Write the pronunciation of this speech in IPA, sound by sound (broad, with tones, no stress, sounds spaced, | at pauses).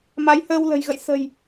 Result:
m a˨˦ j h əː˧ w l ə̤˨˩ j ɣ ə̰˧˨ j s ə̤˨˩ j